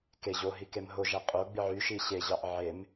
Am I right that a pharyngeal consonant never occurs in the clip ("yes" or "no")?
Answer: no